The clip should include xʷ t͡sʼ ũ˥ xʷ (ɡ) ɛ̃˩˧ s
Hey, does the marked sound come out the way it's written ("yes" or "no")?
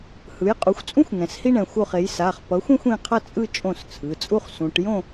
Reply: no